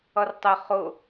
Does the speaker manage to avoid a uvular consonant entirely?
no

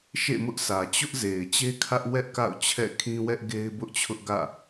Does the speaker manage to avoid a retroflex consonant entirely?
yes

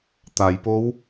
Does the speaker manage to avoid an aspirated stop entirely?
yes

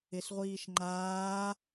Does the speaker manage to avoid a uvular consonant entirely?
no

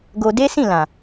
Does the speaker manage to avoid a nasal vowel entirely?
no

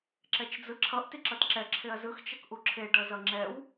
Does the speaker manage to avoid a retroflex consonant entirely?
no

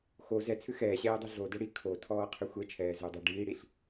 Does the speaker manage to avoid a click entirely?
yes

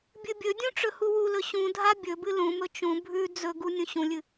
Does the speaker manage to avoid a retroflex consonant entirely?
no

